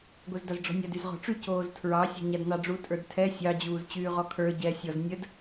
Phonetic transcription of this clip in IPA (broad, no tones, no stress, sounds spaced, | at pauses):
ɡʷ ɛ z d a z ɖ͡ʐ ɔ̤ nʲ a d y z ʁ ɔ̤ ʈ͡ʂ y c oː z tʰ ɹ ɑ sʲ ɔ̤ ɲ a d n ɑ ɖ͡ʐ u tʼ ə˞ d tʰ ɛ sʲ ɑ d͡ʑ uː z t͡ɕ yː ʁ ɔ kʰ ə˞ ɟ ɛ sʲ ɔ z nʲ ə d